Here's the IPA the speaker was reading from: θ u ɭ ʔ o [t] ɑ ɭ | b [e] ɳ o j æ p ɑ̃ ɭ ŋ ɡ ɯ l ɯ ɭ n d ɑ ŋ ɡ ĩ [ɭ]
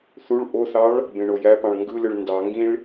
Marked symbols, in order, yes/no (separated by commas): no, no, yes